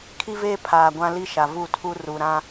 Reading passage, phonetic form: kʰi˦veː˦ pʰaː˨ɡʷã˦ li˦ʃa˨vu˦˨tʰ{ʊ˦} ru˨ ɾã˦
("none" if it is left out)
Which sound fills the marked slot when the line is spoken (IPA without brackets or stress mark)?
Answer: u˦